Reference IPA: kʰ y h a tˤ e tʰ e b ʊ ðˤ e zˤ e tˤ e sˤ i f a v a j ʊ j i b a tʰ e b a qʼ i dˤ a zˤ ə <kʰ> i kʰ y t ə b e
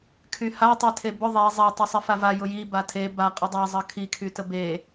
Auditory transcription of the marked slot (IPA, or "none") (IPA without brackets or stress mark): kʰ